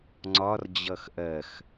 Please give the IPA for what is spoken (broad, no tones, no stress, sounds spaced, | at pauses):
ŋ͡ǀ ɒ r d͡ʑ ʌ x ʔ ɜ x